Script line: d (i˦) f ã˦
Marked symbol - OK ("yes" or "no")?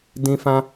no